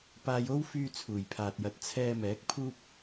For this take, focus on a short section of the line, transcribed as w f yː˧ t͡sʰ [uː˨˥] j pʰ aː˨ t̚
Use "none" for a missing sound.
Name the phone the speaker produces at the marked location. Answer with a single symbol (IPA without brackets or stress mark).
uː˨˩